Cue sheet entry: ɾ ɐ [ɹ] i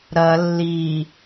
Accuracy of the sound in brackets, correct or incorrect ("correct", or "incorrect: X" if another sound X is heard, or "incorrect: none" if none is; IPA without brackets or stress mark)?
incorrect: lː